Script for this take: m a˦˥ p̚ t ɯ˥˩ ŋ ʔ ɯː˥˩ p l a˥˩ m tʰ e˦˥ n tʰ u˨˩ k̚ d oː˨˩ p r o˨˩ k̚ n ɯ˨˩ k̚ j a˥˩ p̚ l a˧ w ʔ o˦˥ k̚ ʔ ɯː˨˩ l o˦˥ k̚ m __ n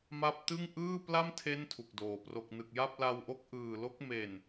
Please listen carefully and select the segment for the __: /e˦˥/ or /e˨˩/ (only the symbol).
e˨˩